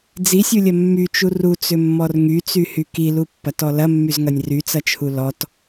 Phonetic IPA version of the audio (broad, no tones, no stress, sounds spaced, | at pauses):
d͡z i sʲ u lʲ ɐ mː y t͡ʃ u r u t͡s ʏ mː ɔ r ŋ y t͡s y h y k i l u pː ɐ t ɔ l ɐ mː y z ŋ ɐ nʲ r y t͡s ɐ t͡ʃʰ u l ɔ t